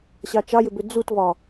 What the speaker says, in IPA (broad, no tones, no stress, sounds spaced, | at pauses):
ɕ ɑ t͡ʃ ɑ j ʏ b ʏ d͡z u t v ɒ